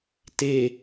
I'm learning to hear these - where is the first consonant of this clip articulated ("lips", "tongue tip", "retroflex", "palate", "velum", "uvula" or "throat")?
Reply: tongue tip